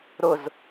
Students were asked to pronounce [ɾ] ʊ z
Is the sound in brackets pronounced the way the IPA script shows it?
yes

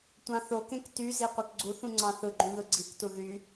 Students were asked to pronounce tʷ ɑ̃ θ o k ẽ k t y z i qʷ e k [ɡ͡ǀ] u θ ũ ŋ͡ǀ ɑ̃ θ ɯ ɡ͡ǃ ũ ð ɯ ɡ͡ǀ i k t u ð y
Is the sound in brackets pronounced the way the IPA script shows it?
yes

